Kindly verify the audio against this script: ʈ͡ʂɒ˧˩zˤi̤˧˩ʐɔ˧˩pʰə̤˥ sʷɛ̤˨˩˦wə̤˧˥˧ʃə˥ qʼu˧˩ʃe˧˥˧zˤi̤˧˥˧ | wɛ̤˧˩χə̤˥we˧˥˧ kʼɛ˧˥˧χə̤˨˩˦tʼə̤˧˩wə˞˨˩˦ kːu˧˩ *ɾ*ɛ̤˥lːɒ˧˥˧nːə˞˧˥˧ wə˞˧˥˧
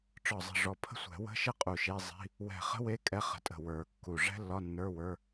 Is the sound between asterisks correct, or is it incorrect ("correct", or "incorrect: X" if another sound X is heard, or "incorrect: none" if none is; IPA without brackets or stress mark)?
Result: incorrect: ʐ